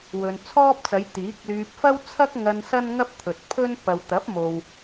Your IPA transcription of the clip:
wɵ˨nt͡sʰɔː˥p̚t͡sɐ˨˧j t̪iː˨˥k̚lyː˧p̚ fɐ˥w t͡sʰɐ˥k̚ŋɐ˧n sɐ˥nŋɐ˥p̚ t̪ʰɵ˨t̚pʰɵ˥n pɐ˨wt̪ɐ˨˥p̚ mo˨w

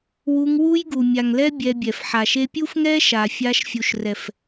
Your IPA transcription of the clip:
wu˧ŋ wu˦jɡu˨mʲa˨ŋlɛ˦ bʲɛ˧bʲɛ˨f ħa˨ʃe˧pʲu˦fŋɛ˦ ʃa˨fʲa˧ʃfʲu˨ʃ rɛ˨f

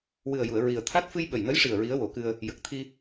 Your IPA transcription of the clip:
wɨ˨˩ə̯ju˨˩˨ə̯ ɹi˨˩ə̯t̪ʰa˦˥t̚ fɨ˧jɓə˨˩jnə˧˥jʂi˨˩ə̯ ɹi˧˥ə̯wo˨˩˦kɨ˧ə̯ | jə˨˩k̚t̪ʰi˧

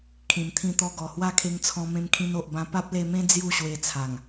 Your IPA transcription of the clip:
kʰĩ˨˩mt̪ʰĩ˧t̪ɔ˧ɡɔ˨˩ hwa˦kʰe˧ŋt͡sʰɔ̃˧mẽ˧m kʰĩ˧no˨ʔbã˧ pa˦p̚le˧mẽ˦ d͡zju˥˧ɕwe˧t͡sʰa˨˩ŋ

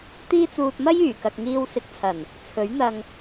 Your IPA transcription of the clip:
t̪iː˥t͡suː˧t̚ mɐ˥jyː˨˩kɐ˨k̚ŋiː˧w sɪ˧k̚t͡sʰɐ˨˩n | t͡sʰɵ˨˥ɥn̪ɐ˧ŋ

